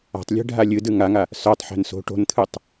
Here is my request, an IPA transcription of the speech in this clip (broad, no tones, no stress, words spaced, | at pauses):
a̤tˤlʲe̤ ɖʱalʲɨdɨ ŋaŋa | sœtˤħe̤n so̤ ʈo̤nt̪ʰɨtˤ